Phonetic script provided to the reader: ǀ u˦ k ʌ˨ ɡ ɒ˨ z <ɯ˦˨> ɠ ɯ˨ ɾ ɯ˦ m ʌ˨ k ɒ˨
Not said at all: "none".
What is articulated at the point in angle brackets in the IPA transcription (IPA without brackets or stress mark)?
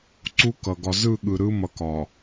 ɯ˦˨